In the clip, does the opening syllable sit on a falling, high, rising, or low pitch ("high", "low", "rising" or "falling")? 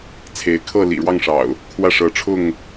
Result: rising